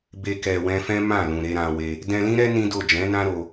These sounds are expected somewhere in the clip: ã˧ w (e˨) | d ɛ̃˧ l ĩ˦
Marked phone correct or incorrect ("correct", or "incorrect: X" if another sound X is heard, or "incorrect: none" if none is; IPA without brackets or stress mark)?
incorrect: e˧